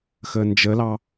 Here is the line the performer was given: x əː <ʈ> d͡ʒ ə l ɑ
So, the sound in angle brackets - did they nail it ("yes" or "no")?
no